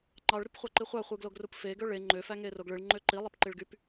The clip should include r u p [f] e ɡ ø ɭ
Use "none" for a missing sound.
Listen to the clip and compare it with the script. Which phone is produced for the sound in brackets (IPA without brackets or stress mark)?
f